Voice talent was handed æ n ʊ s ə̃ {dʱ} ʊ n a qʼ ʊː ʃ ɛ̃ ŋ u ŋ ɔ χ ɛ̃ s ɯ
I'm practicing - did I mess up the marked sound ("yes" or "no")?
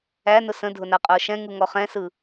no